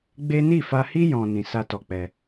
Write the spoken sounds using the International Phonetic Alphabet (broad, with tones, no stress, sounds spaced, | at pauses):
ɡ͡b e˦ n i˦˨ f a˧ h i˦ j ɔ̃˦ n ĩ˧ s a˦ t ɔ˧ k͡p ɛ˧